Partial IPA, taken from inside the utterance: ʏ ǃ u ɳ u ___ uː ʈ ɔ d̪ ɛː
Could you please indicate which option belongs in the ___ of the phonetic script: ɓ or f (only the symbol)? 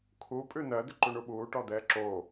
ɓ